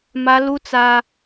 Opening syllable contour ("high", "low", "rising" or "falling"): high